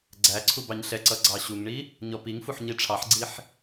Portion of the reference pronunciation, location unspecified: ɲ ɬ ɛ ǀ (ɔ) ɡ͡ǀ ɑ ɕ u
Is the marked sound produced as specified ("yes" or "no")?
no